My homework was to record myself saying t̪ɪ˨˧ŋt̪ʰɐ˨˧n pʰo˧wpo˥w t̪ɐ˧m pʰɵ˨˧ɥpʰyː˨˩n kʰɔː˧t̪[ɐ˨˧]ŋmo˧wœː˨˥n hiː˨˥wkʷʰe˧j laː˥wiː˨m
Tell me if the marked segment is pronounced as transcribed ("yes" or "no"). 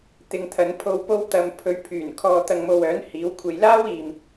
no